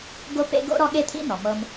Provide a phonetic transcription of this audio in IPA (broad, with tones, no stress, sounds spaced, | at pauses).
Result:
ɡ o˦ p ḛ˦ ɡ o̰˥ ɾ ɔ˦ ɠ e˥ t̪ʰ ḭ˥ n ɔ˩ m ɤ˨ m